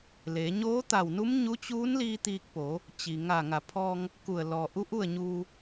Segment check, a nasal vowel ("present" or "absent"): absent